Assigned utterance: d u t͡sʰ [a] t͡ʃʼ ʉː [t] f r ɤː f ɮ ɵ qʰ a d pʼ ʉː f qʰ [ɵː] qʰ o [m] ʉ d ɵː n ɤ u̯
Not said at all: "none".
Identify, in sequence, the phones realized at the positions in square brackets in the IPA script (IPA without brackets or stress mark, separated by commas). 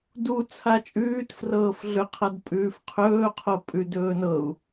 a, t, ɵː, pʼ